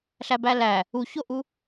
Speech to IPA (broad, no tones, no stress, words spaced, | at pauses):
ɬæbælæ | uçoʔu